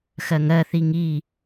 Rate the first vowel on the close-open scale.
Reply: mid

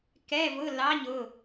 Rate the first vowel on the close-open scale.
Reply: mid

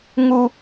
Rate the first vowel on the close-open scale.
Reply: close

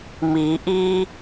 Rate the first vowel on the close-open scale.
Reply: close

